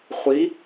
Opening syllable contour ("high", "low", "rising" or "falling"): rising